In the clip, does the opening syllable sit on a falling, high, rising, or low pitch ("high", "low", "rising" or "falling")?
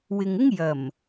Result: low